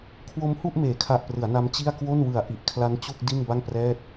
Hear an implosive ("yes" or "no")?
no